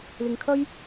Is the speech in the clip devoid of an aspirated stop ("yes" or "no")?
no